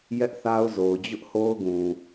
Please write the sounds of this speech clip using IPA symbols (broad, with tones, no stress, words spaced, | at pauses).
jɛ˦ʔθa˦ʊ̯zo˨ʊ̯ d͡ʑʊ˦ʔho˦ʊ̯ɡũ˨